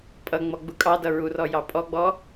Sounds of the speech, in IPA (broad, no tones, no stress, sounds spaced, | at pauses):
pʼ ʌ ŋ͡m ɔ ɡ͡b u kʼ ɑ d ʌ ɹ u r ɔ j ɑ pʼ ɔ ɡ͡b ɔ